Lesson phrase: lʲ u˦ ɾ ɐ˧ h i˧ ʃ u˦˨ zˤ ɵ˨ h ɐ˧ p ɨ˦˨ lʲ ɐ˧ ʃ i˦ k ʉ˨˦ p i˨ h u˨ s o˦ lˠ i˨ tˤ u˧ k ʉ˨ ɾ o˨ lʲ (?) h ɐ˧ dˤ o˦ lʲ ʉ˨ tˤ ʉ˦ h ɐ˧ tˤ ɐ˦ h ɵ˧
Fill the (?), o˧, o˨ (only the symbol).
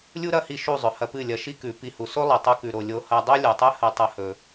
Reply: o˧